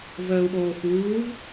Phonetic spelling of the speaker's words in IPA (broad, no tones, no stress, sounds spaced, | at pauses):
v əː u̯ ɓ oː f uː v